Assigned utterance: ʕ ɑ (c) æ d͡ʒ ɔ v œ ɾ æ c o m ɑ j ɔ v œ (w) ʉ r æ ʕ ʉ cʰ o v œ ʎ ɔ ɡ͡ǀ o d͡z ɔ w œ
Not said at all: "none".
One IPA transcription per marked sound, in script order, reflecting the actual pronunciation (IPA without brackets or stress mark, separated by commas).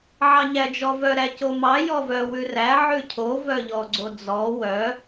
ɲ, w